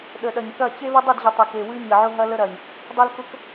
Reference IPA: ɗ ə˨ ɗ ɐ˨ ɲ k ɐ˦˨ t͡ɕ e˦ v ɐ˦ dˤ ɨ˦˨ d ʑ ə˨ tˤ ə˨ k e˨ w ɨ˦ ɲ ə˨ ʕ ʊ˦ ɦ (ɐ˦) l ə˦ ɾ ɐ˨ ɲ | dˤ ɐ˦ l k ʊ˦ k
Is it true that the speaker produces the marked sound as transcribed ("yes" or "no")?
yes